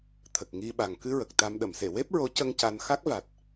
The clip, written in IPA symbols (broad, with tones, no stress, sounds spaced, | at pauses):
t̪ʰ ə˨˩ k̚ ŋ i˧ ɓ a˨˩ ŋ k ɨ˧ ɹ ə˨˩ k̚ t̪ a˧ m ɗ ə˨˩˨ m s e˨˩˨ w e˦˥ p̚ ɹ o˧˥ c ə˧ ŋ c a˧ n x a˦˥ k̚ v a˨˩ t̚